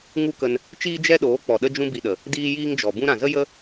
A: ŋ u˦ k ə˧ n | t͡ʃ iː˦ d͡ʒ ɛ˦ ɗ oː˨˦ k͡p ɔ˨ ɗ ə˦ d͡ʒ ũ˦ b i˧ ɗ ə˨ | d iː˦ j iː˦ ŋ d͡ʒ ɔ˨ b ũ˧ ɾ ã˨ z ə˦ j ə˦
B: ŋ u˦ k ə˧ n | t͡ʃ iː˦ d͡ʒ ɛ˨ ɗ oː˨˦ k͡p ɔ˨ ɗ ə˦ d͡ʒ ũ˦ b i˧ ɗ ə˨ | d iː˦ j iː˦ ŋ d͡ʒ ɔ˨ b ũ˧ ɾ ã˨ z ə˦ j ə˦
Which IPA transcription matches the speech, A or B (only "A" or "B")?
A